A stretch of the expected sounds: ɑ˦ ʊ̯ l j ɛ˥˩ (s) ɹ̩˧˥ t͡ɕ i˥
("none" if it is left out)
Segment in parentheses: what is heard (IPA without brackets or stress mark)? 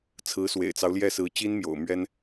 s